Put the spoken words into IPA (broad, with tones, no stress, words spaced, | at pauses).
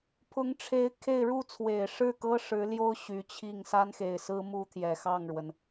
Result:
pʰʊ˧˥ŋʈ͡ʂʰe˧˥ɪ̯ kʰe˥˧ɪ̯ ɻu˥˩t͡sʰwe˨˩ɪ̯ʂɻ̩˥˩kɤ˥ ʂɻ̩˧˥ljo˥ʊ̯ ɕy˧˥t͡ɕʰi˥˩ŋ sa˥nxe˨˩ɪ̯sɹ̩˥ mu˥t̪ʰjɛ˨˩xɑ˥˩ŋɻwə˩n